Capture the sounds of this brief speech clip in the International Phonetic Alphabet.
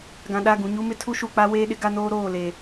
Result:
ɡã˨ɗa˦˨ ɡũ˨ɲu˦mɪ˦ tʰu˦ʃu˨k͡pa˦ weː˦ɗɪ˦ɡa˦noː˦ ɾoː˦˨le˨

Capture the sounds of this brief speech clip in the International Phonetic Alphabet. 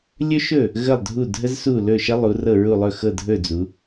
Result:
lʲɵ˥ʃɵ˥˨ | ɣə˥˨lˠdʱu˥˨dʱə˥zsu˥˨ lɵ˥˨ʃə˥lˠu˨˦ rɤ˥˨ɹu˥˨ lˠɵ˥˨xɤ˥˨dʱɵ˥˨ d͡zu˨˦

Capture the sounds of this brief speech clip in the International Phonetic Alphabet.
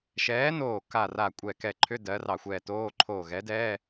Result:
ʃɛː˨˥noː˧˩ ka˧˩ ra˧˩kʷʼɛ˧˩kɛ˧˩ǃʰʏ˧˥˧ dɜ˨˥rɑ˧˩xʷɛː˧˩toː˧˥˧ ǃʰoː˧˩ɣɛ˨˥dɛː˧˥˧

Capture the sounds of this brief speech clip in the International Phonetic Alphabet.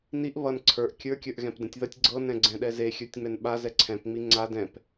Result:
niʔ βʌn ǀʰə˞ʔ kʲə˞kʲə˞ʔɣɛ̃p dɛ̃tʲðʌtʲ ɡ͡ǀɤnɛ̃ɡ͡ǀɛ̃ ɗɛze xʲə˞tʲŋ͡mɛnɓa zɛǀʰɛ̃p ŋ͡miŋ͡ǀa dɛ̃p

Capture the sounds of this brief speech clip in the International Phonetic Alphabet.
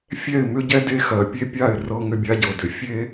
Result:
fʲɛ˦˨ɪ̯mʏ˦ɟɛ˦ de˦xɜ˨ pʲe˦pʲa˦˨ɪ̯ rɤ˦ ŋʏ˦bʲa˦ɟɤ˨ dʏ˨ fʲe˦

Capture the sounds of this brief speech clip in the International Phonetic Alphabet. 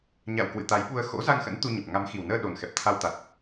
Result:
ɲa̰˧˨w kwɨ̰˧˨t̪a˨˦jɓu˧ə̯ xo̰˧˥ za˧ŋxə̰˧˥n t̪u˧ɲə˨˩p̚ ŋa˨˦mxi˨˩wnəː˧ ɗo˨˩nxɛ˨˩p̚t̪ʰa˧wt̪a˨˩t̚

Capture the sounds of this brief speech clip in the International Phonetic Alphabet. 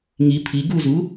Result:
ŋi pʰi ɡuzu

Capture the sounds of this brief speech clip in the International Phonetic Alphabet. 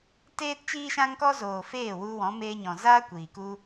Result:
teː˦tt͡ʃiː˦ʃã˦ŋkɔ˦ zoː˨feː˦˨ wu˧ wɔ̃˨˦ meː˧ɲɔ̃˨zaː˦ kʷiː˨ku˦

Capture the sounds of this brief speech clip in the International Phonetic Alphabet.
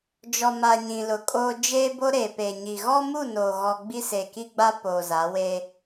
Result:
d͡ʒɔ˨ma˨ ɲĩ˨lʊ˨kʼoː˦ d͡ʒeː˦bo˦ ɾeː˨peː˨ɲi˨ ɣɔ˦mu˦˨noː˨ ɣɔ˦ ɡ͡bi˦se˨ki˦ɡ͡ba˦ poː˨za˨˦we˦

